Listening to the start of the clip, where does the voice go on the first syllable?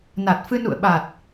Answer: low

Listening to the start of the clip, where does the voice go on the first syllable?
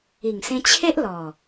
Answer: low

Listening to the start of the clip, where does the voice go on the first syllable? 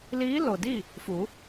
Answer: rising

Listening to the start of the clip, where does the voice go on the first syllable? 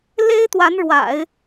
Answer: high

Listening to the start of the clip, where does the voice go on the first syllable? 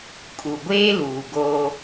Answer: low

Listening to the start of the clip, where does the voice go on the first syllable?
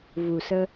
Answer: low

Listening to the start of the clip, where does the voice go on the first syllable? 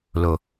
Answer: low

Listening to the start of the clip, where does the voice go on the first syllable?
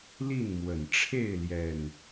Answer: falling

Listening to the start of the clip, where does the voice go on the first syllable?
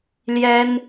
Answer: high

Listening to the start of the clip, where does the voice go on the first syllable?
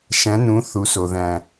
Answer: rising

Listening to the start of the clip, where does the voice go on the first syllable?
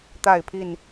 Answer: falling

